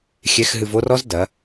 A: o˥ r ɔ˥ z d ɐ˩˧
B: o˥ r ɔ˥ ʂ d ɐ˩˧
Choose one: A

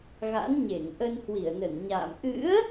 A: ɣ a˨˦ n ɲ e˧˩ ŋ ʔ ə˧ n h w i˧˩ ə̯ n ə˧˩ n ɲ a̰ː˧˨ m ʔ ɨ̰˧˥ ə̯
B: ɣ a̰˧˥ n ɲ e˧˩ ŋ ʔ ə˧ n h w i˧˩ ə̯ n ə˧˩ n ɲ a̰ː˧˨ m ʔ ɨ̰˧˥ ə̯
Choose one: B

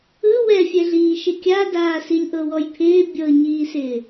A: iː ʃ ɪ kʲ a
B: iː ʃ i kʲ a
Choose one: A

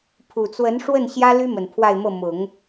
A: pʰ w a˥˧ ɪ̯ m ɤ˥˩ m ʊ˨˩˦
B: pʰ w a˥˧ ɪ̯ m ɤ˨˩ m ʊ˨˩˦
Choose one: A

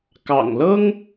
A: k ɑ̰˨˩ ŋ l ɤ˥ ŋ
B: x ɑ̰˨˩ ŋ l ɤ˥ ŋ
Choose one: A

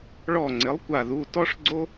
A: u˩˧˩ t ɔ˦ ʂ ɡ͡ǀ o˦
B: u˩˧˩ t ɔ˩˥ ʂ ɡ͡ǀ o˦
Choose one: A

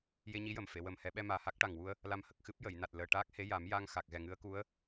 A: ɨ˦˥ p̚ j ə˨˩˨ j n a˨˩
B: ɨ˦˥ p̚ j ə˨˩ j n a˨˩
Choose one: A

